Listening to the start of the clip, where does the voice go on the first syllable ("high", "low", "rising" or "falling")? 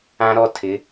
high